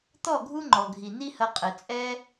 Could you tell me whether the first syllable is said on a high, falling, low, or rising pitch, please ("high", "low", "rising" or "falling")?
falling